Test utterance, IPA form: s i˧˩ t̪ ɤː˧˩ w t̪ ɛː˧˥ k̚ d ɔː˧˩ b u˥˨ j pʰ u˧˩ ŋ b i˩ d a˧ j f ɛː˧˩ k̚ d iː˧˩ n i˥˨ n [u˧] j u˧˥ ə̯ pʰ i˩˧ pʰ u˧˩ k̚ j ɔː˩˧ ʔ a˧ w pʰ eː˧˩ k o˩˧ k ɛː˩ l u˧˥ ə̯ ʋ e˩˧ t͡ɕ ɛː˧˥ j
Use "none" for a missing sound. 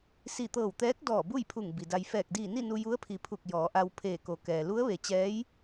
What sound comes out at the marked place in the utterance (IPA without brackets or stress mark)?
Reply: u˧